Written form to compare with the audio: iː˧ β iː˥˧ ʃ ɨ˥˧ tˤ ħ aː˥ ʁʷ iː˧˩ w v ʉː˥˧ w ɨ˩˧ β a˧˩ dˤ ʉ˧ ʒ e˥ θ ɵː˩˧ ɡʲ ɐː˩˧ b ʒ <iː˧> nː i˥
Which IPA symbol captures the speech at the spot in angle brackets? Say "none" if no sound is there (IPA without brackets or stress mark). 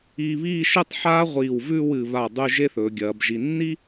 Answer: i˧